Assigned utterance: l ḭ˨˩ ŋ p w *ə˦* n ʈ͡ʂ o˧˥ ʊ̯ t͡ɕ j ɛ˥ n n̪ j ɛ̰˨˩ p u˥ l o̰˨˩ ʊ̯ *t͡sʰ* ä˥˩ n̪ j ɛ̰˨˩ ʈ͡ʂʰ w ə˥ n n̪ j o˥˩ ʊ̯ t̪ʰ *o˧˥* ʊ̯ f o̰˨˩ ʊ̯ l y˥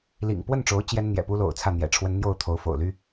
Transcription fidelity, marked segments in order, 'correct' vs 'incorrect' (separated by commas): incorrect, correct, correct